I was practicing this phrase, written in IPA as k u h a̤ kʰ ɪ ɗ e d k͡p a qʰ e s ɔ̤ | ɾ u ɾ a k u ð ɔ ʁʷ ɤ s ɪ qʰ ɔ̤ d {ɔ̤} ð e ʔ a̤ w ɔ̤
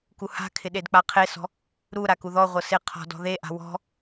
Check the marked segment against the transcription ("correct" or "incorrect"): correct